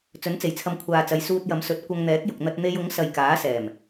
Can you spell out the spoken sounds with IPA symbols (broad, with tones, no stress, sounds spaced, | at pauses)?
t͡s ɵ˨˥ n t͡s e˨˩ j t͡sʰ ɐ˧ m kʷʰ aː˨ t͡s ɐ˨˧ j s uː˧ t̚ j ɐ˨˧ m s ɵ˨˥ t̚ kʷ ɐ˧ ŋ n̪ ɛː˨˥ k̚ j ʊ˨ k̚ n̪ ɐ˧ t̚ n̪ e˧ j ʊ˨˥ ŋ s ɐ˨ j k aː˨˥ s ɛː˨˩ m